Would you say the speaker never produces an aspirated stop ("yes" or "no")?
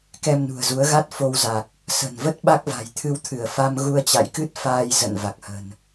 no